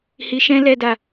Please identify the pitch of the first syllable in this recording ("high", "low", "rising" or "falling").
low